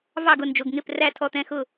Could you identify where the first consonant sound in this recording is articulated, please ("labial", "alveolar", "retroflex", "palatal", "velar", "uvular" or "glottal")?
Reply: labial